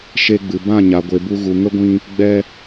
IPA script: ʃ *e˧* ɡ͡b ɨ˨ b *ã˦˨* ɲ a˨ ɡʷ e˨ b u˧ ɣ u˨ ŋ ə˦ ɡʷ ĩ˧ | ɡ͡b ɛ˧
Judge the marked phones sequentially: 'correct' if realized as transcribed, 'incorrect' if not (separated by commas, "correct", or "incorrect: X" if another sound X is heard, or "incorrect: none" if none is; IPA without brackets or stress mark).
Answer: correct, correct